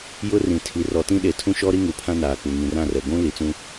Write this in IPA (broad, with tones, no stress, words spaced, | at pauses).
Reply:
jʊ˦rĩ˨ tʰi˨˦ rɔ˨tĩ˦ɗe˨tʰũ˦ ʃɔ˦ɾi˦ ŋu˨pʰã˦ naː˨k͡pu˨ ŋĩ˨rã˦˨rɛ˨ ɡʷũ˦ li˨t͡sũ˦